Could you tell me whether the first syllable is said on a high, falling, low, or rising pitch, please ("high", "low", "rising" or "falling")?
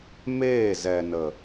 falling